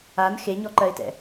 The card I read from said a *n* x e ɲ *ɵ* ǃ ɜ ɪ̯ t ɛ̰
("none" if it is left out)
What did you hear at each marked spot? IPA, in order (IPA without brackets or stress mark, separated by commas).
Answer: n, ɔ